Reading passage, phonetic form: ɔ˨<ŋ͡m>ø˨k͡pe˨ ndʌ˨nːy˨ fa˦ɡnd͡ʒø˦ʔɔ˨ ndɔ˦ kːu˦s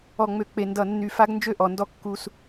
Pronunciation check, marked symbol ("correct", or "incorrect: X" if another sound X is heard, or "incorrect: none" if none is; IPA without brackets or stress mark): correct